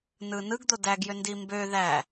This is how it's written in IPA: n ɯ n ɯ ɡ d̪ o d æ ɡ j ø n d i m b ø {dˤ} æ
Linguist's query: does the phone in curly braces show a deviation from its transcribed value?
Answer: yes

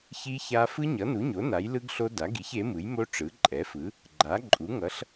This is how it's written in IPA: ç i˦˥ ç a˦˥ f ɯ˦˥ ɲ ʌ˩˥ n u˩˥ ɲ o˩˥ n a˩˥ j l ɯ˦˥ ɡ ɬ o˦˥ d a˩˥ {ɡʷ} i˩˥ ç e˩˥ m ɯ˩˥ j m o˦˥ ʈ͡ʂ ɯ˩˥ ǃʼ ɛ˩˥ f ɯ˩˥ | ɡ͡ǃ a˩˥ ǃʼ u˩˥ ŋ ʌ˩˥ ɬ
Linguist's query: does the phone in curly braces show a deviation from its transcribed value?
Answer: yes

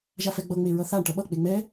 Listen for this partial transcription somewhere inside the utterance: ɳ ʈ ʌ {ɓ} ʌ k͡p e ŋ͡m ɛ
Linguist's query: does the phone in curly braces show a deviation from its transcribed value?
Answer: no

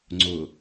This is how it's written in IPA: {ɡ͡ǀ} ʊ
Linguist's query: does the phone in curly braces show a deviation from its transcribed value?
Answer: yes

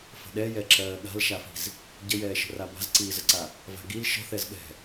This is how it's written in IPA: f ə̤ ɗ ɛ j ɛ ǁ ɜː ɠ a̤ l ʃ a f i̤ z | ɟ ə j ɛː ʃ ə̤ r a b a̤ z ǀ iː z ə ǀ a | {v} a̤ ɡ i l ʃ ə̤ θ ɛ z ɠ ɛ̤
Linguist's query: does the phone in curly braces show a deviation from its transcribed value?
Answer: no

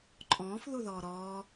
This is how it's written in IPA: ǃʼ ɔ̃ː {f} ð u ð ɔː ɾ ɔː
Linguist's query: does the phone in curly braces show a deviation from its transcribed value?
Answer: no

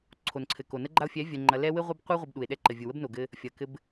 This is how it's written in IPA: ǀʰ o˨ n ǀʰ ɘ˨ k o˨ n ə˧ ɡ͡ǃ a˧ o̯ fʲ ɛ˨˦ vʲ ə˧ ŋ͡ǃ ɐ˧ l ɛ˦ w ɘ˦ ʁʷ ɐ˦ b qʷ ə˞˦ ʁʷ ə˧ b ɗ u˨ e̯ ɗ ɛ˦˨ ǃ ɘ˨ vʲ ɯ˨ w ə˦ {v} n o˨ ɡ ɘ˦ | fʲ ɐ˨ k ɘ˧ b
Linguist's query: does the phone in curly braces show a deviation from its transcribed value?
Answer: yes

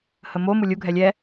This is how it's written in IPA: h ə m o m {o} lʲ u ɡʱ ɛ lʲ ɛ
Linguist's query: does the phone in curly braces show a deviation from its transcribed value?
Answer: yes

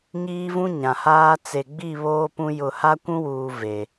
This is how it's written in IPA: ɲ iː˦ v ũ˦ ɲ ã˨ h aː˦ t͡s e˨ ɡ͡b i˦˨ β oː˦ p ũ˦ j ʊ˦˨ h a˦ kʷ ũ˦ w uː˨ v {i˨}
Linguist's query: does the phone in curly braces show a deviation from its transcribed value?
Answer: yes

